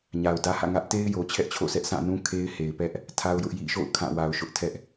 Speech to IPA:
ɲ a˨ ʊ̯ d ä˦ h ä̰˦˨ ŋ ä˦ ʔ t e˦ ɪ̯ j o˨ t͡ɕʰ ɛ˦ ʔ t͡ɕʰ o̰˦˨ s ɛ˦ ʔ s ã˦˨ n ũ˦ kʰ e˦ ɪ̯ h e˨ ɪ̯ p ɛ˦ ʔ | tʰ a˦ ʊ̯ j ʊ˦ ʔ j ḭ˦˨ ʃ o̰˦˨ ʊ̯ kʰ ã˦˨ w a˨ ʊ̯ ʃ ʊ˦ ʔ tʰ ɛ˦ ʔ

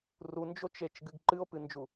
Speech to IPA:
r u n d͡ʒ o t͡ʃ e t͡ʃ ɡ ɨ ɡ ǃ ɨ o̯ p ɨ n d͡ʒ u

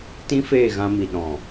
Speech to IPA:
t ĩ˦ f eː˦˨ ɣ ã˧ m i˨ ɗ ɔ̃˨

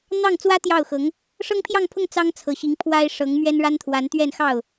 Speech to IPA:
n̪ ɑ˥˩ ŋ t͡s w ä˥ t̪ j ɑ˥˩ ʊ̯ x ɤ˧˥ ŋ | ʂ ɤ˥ ŋ pʰ j ɑ˥˧ ŋ pʰ ʊ˥˩ ŋ t͡s ɑ˥ ŋ t͡sʰ ɤ˨˩ ɕ i˧˥ ŋ pʰ w a˥ ɪ̯ ʂ ɤ˧˥ ŋ m ɥ ɛ˥ n ɻ a˥ n t̪ʰ w a˧˥ n t̪ ɥ ɛ˥˧ n x ɑ˥˩ ʊ̯

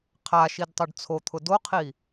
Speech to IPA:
qʰ a ʃ i d tˤ ʊ ɖ t͡sʰ o t̪ʰ ʊ d o qʰ i

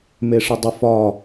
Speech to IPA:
m e ʂ ə dˤ ə f ɒ

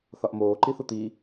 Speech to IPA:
θ ɒ ʔ m oː ǃ i θ u t̪ i

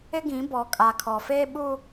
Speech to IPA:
ɪ˦ ɡ ĩ˨˦ b ɔ˨ kʼ a˨ kʰ ɔ˨ f eː˦ ɓ u˦

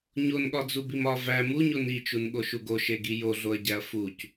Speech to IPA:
ɲ o n ɠ ɒ d͡z u b i m ɒ v æ m u ɲ o n i t͡ʃ u n ɠ o ʃ u ɡ o ʃ e ɡ i j o ɮ o ɐ̯ ɟ æ ɐ̯ f u c

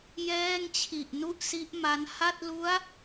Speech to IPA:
j ɛː˥˩ ŋ t͡ɕʰ i˨˩ ʔ n u˥˩ ʔ s i˦˥ ʔ m a˦˥ n h a˥˩ t̚ l u˦˥ a̯

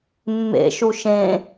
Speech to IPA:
mː ḛ ʃ u ʃ ẽ

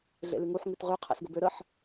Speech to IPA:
ɮ ḛ l ʉ ŋ u ħ ŋ ʉ t ʁ ʉ qʰ ɛ̰ s ɡ ə b ø ɾ ə ħ

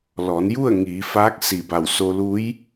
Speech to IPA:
l ɔː˩˧ n j u˥˨ ə̯ ŋ iː˩˧ f aː˧˥ k̚ s i˧˩ b a˧˩ w s o˧ l u˧˥ j

